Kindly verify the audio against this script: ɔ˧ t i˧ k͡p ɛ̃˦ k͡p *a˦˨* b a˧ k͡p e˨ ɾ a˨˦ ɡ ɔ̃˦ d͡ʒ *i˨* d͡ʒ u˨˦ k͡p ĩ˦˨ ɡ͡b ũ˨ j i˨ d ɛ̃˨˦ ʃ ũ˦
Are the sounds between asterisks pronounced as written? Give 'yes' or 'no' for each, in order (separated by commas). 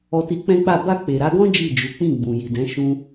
yes, no